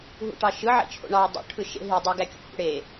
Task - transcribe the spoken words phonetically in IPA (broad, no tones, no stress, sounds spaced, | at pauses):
ɦ ṵ ʈ ɑ ʃ ɯ ʕ ḛ t͡ʃʰ o̰ ɳ ɑ w dˤ ṵ ʈʰ ɯ ʃ ḛ ɦ i dˤ æ ɡ æ kʲ o̰ h ṵ ɽ e